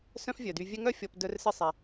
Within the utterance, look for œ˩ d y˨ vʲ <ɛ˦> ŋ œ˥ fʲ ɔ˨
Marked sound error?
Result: no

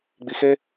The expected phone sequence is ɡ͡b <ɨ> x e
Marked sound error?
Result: yes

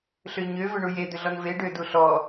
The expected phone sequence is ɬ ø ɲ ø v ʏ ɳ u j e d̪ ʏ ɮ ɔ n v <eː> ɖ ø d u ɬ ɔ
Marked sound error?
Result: yes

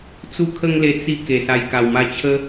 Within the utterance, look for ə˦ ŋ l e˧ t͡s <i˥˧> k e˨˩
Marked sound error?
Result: no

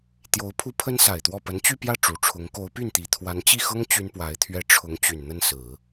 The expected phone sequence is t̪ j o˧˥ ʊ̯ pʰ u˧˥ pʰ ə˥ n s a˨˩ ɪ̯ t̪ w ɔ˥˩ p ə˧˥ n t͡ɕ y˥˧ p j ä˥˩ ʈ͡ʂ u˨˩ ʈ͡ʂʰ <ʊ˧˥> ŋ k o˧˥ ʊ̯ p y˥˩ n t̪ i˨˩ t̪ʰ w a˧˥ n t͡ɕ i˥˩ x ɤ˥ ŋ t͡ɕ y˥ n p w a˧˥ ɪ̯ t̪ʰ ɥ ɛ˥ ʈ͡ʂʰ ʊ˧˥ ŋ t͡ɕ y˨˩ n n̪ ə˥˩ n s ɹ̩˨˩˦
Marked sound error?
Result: no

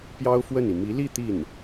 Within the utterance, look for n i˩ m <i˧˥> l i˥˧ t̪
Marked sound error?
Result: no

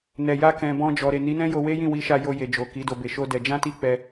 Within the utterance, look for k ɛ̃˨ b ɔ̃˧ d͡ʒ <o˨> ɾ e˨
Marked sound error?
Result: yes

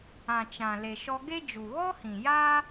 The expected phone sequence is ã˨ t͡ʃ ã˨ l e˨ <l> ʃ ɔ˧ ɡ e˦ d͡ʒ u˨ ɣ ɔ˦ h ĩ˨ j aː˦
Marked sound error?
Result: yes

